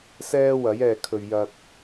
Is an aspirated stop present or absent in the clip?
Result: present